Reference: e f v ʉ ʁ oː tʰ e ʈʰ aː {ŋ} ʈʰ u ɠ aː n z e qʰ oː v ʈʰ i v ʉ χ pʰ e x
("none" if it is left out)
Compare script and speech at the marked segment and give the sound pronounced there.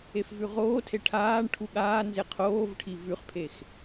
ɳ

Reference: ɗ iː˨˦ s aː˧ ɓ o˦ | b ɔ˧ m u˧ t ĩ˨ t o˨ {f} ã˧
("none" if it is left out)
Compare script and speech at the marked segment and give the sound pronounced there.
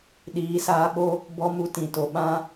ɓ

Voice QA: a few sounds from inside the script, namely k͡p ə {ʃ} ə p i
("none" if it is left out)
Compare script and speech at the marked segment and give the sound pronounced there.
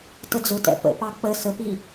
s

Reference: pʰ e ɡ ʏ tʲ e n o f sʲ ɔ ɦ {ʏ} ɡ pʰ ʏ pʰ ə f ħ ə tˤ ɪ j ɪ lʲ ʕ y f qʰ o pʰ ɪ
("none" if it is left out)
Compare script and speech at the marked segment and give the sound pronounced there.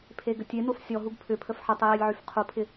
u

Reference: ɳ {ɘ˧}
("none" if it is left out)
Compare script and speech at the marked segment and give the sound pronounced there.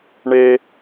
e˧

